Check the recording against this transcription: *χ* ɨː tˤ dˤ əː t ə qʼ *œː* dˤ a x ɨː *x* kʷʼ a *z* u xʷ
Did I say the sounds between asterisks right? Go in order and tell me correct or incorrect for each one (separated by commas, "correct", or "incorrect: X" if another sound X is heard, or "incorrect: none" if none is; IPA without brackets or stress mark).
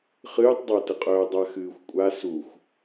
correct, correct, incorrect: xʷ, incorrect: s